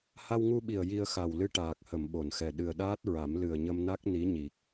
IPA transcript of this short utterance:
ha˧wŋu˧ɓi˨˩ə̯ ji˧ə̯xa˨˩w lɨ˧ʈaː˨˩k̚hə˨˩˨m ɓo˨˩˨nxɛ˨˩ ɗɨ˨˩ə̯ɗaː˦˥t̚ɹa˨˩˦m lɨ˨˩ə̯ɲə˧mna˦˥k̚ ni˧˥ɲi˨˩k̚

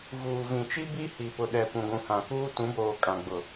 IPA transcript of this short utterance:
vuː˨vĩ˨t͡ʃi˦ bi˦hi˨pʊ˨ ɗɛ˨ pũ˨ɡʷũ˨hã˨kuː˦ tũ˨˦boː˨kʼã˨ ɡ͡bʊ˨

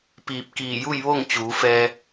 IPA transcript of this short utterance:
piː˧˩p̚kiː˧˩ju˥˨jʋo˥˨ŋ t͡ɕuː˩˧fɛː˧

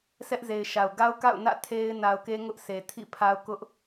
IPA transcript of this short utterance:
sʰɛ˦ʔze˨ɪ̯ʃa˨ʊ̯ ɡa˦ʊ̯ka̰˦˨ʊ̯nä̰˦˨ tʰe˦ɪ̯ na˨ʊ̯ke˦ ŋʊ˦ʔse˨tʰḭ˦˨pʰa˦ʊ̯ kʊ˦ʔ

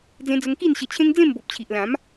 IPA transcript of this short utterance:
d͡zẽ˧d͡zə˧ŋ ki˥˧nɕə˧t͡ɕʰẽ˦ŋ d͡zẽ˥˧mbo˨p̚t͡ɕʰi˨ʔlã˨˦m

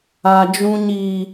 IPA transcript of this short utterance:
a˦ d͡ʒũ˦ɲiː˦

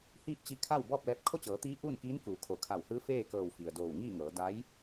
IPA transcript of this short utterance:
hiː˥˨p̚t͡ɕi˧˥kʰa˥˨w bɔː˥˨p̚lɛː˧˥p̚ kʰo˥˨t͡ɕɤː˩˧t̪iː˧˥ ʔuː˥˨nkiː˧˥n kuː˩˧kʰo˩˧kʰa˧˩whɯː˧˥ feː˥˨kɤː˧˩w fi˩ə̯doː˧˩wŋiː˥˨ŋɤː˩˧ da˧˥j

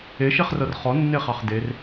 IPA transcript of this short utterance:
eʃeχrɤr χɔnːeχɑχ der

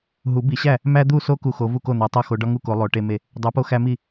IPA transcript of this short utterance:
ɦu˨˩˦ bi˨˩˦ɕæ˥˩ | mæ˦d̪u˥˩so˦ ku˦xo˨˥ vu˥˩ko˥˩n̪æ˨˥ tˤo˥˩xo˨˩˦ ɖɒ˦ŋu˥˩ko˨˩˦ lˠo˨˥ʈe˦me˥˩ | dˤæ˨˥po˦ xæ˦mi˥˩

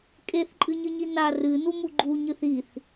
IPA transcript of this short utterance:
kʼeθǃʼɨɲɨɲi na rɨnumu ɡ͡ǃuɲɨθ iθ

